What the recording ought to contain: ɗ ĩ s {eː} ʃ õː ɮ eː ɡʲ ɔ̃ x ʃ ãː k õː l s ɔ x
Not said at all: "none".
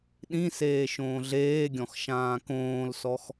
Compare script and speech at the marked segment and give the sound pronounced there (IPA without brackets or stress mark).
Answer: eː